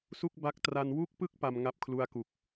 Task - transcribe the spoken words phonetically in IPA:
s u˥˩ k̚ b a˦˥ k̚ t r a˧ n w u˥˩ k̚ p ɯ˥˩ k̚ p a˧ m ŋ a˦˥ p̚ kʰ l u˦˥ a̯ k u˨˩ k̚

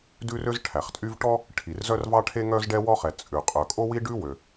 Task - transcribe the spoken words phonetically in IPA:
d ʉ˥ r ø˥ z ʈʰ æ˩ χ tʼ y˥ v ʈ ɔ˥ | ʈʰ i˩ r z œ˥ r v ɑ˥ ʈʰ e˥ ŋ œ˥ z ɖ ɛ˥ w ɔ˥ χ ɛ˩ t͡sʼ ʉ˩ qʼ œ˩ kʼ o˥ w i˥ ɖ ʉ˥ w ø˩

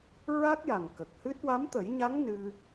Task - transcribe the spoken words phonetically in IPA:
ɹ a˦˥ k̚ j a˨˩ ŋ k ə˨˩ k̚ h ɨ˦˥ t̚ w a˧˥ m t̪ ə˨˩˦ j ɲ a˧˥ ŋ n ɨ˧

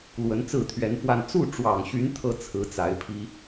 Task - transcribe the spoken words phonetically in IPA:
l w ə˧˥ n t͡s ɹ̩˥˩ t̪ʰ ɥ ɛ˧˥ n f w a˥˧ n t͡s u˥˩ ʈ͡ʂ w ɑ˨˩ ŋ ɕ y˧˥ n t̪ʰ ɤ˥ t͡sʰ ɹ̩˧˥ t͡s a˧˥ ɪ̯ pʰ i˥

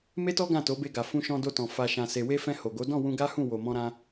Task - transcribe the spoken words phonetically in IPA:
m e˦ t ɔ˦ ɡ ã˦˨ t o˨˦ b e˧ ɡ a˨ f ũ˧ ʃ ɔ̃˧ d o˧ t ɔ̃˨ f a˨ ʃ ã˨ s e˨ w e˧ f ɛ̃˧ h o˨ ɡ o˨˦ d ɔ̃˦˨ w ũ˧ ɡ a˦ h ũ˦˨ w o˨ m ɔ̃˧ ɾ ã˧

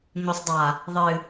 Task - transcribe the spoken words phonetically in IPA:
ɲ o sˤ dˤ a | ðˤ ɨ

